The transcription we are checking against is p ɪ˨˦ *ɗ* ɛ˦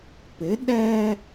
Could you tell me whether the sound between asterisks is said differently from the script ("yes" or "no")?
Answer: no